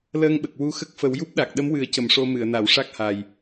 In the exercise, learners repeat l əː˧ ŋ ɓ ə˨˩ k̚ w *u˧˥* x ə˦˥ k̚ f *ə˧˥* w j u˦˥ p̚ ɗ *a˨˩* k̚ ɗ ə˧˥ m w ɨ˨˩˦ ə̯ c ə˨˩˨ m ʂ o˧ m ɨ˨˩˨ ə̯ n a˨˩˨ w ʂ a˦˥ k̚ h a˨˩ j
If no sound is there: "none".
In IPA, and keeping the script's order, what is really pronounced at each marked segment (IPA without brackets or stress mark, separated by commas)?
u˧˥, ə˨˩˦, a˨˩